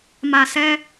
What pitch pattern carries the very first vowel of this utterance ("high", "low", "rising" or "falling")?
low